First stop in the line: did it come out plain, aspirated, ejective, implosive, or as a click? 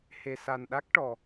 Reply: implosive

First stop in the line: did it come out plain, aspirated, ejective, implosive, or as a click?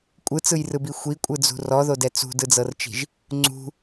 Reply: ejective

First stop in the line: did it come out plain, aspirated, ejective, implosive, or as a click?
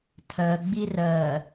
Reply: aspirated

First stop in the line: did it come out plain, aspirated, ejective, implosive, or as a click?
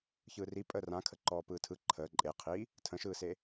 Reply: ejective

